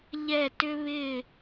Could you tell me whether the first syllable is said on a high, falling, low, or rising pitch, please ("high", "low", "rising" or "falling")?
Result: falling